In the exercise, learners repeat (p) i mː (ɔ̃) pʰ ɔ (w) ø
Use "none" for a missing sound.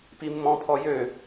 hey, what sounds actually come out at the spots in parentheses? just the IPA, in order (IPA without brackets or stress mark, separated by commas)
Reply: p, ɔ̃, j